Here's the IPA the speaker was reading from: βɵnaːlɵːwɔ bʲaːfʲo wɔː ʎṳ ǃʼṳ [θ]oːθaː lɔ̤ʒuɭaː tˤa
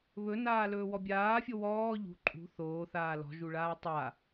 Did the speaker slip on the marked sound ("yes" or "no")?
no